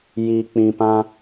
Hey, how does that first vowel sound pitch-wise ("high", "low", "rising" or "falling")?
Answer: low